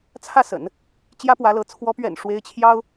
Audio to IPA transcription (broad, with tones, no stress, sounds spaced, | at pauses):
t͡sʰ ä˥˩ s ə̰˨˩˦ n | t͡ɕ j ä˥ p w ä˧˥ l ɤ˧˥ t͡sʰ w ɔ˧˥ p ɥ ɛ̰˨˩ n ʂ w e˥ ɪ̯ t͡ɕʰ j ɑ˥ ʊ̯